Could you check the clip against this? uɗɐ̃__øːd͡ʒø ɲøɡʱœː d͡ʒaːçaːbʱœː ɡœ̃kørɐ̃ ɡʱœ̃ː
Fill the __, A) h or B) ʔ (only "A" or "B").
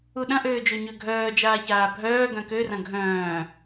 B